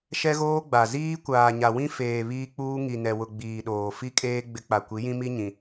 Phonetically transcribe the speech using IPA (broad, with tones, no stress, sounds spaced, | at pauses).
ʃ ɛ˦ ɣ oː˦ ɡ͡b a˨ z iː˦ kʷ aː˨ ɲ a˨ w ĩ˦ f eː˨ β iː˦ k͡p uː˦ ŋ i˨ n ɛ˨ w ʊ˨ ɡ͡b iː˨ ɗ oː˨ f i˦ kʼ eː˦ ɡ͡b ɪ˦ k͡p a˨ kʷ i˨˦ j ĩ˦ m i˦ ɲ ĩ˨